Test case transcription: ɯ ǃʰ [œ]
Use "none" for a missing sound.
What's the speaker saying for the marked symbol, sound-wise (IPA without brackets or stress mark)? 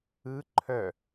œ